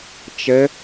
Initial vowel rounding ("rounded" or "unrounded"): unrounded